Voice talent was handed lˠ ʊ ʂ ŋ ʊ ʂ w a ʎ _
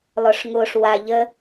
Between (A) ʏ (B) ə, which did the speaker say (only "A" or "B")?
B